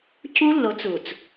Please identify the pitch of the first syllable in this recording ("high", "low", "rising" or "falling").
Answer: high